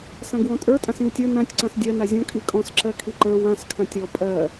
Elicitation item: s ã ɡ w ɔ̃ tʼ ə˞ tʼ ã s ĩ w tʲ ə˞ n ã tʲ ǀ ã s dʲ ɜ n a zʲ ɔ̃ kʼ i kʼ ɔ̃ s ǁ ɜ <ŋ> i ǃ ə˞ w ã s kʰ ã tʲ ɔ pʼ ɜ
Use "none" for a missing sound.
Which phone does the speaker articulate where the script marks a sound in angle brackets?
kʰ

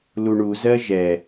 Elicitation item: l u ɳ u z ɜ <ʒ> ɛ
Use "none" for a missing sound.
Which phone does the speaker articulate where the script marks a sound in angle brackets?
ʒ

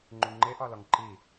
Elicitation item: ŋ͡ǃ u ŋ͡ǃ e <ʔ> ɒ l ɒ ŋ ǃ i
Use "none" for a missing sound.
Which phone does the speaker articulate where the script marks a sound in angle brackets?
ʔ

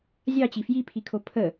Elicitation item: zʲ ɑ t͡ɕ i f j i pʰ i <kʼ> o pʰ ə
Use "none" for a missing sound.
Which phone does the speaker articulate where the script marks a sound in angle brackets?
kʰ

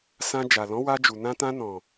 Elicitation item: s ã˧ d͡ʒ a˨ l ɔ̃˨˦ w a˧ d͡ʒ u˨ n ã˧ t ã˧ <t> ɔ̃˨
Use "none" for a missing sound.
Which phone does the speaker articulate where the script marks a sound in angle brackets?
n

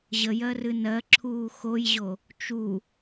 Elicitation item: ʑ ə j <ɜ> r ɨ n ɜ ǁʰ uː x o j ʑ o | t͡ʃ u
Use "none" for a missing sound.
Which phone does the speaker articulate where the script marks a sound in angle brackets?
ɜ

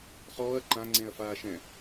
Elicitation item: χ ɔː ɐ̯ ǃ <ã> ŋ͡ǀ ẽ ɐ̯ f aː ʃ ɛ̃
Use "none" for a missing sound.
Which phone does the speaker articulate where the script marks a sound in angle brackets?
ã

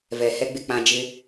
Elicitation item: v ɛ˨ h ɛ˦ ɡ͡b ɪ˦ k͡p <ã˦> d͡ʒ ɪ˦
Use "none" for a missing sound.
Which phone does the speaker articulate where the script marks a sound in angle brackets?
ã˦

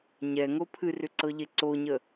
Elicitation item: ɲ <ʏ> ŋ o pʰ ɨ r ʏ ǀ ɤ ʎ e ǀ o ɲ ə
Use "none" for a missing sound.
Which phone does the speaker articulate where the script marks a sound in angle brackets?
ɛ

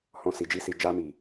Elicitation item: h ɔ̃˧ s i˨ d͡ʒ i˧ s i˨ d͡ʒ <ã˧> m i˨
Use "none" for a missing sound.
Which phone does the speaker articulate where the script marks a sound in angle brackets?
a˧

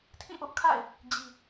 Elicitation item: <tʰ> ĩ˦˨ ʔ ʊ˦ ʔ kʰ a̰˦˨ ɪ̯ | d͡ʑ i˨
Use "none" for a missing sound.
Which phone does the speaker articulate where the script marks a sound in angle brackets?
tʰ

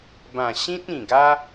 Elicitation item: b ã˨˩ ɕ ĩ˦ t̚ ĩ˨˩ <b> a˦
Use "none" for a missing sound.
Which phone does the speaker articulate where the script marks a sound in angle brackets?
ɡ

